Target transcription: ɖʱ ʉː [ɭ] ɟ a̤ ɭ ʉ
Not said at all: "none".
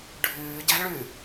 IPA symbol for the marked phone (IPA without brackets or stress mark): none